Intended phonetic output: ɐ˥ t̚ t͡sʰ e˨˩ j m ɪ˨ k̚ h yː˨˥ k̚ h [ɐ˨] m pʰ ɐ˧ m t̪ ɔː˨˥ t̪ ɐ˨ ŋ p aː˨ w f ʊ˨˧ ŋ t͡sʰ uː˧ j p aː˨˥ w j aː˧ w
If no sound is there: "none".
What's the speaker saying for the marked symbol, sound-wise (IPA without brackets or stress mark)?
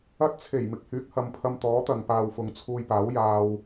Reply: ɐ˨